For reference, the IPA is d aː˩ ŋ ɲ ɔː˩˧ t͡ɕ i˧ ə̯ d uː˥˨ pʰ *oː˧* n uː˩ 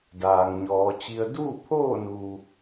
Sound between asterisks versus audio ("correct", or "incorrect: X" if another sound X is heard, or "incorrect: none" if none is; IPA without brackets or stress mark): incorrect: oː˥˨